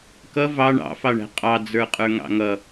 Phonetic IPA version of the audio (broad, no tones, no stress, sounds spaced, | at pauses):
k ʌ v ɑ ɳ ɑ̰ f ɑ ɳ æ̤ qʼ ɑ d͡z ə˞ qʼ ə˞ ŋ ɑ̰ ŋ ʌ